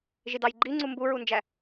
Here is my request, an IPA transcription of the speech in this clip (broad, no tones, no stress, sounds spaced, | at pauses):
ʒ i d ɑ j ɡ͡ǃ i ŋ͡ǀ u m b u ɹ u n d͡ʒ æ